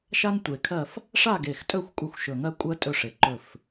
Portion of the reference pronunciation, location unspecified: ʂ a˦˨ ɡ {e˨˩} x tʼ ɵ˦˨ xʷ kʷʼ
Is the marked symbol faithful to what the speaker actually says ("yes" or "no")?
yes